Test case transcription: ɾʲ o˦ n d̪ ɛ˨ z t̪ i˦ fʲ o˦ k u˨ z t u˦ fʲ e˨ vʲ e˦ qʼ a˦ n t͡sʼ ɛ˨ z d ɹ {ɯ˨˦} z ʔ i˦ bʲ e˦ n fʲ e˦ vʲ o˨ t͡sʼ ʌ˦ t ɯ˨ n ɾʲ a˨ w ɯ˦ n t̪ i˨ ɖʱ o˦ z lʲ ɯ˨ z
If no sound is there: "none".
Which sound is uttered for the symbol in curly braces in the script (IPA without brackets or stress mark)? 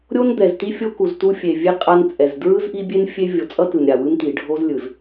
ɯ˦